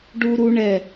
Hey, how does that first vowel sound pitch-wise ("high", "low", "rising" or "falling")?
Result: high